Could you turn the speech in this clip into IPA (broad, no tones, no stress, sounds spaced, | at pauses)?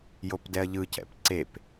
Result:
j o p d ɛ ɐ̯ ʎ ɯ c ɛ̰ p ǀ e p